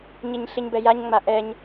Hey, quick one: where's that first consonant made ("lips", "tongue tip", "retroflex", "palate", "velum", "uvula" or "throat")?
palate